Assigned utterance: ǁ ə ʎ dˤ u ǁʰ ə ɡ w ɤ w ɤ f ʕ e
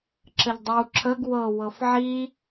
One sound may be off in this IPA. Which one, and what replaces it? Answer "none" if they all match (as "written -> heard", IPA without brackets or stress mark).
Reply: e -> i